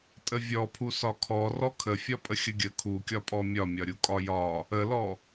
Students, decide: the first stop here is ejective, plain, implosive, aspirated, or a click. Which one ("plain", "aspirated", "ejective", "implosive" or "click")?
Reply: ejective